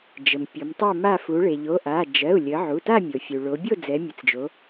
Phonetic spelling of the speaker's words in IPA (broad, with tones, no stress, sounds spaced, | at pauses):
d͡ʒ ə˩ m pʲ o˩˧ m tˤ ɛ˥˨ m a˥˨ f u˩˧ ɭ e˩ ʎ o˩˧˩ ʔ a˩˧˩ d͡ʒ ɜ˩˧˩ u̯ lʲ ə˩˧ ʕ u˩˧˩ t a˥˨ mʲ o˩ fʲ u˩ ɭ o˩˧ bʲ o˥˨ d͡z ɛ˩˧ mʲ ə˩˧ t͡s d͡ʒ o˩˧